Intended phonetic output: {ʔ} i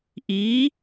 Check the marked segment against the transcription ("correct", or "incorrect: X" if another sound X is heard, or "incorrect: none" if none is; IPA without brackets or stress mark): correct